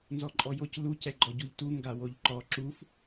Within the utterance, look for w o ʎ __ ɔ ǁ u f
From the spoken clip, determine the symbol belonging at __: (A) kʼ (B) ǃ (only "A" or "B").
B